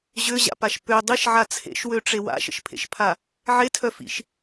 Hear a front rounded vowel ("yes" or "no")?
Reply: yes